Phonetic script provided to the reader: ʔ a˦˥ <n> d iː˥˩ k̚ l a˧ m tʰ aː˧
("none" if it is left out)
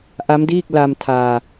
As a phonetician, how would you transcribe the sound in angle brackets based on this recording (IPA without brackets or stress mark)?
m